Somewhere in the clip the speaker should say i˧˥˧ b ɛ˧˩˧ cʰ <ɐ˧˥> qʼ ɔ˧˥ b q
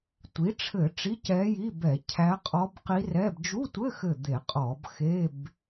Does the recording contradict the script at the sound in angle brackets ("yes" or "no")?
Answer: yes